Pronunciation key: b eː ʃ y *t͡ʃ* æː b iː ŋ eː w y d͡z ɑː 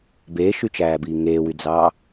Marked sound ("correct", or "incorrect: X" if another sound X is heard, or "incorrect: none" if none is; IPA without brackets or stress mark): correct